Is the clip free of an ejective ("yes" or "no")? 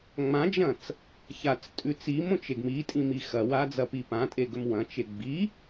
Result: no